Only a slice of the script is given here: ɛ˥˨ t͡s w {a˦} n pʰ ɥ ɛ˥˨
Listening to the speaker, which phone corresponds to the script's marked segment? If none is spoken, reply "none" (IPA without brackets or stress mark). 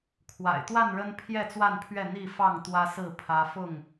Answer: a˥˨